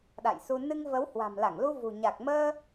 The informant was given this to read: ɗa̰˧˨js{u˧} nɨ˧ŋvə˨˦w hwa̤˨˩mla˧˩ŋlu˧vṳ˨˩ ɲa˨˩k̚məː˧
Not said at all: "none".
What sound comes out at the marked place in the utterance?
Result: u˧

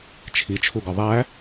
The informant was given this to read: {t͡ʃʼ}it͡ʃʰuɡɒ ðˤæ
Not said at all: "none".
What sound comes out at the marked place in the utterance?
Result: t͡ʃʰ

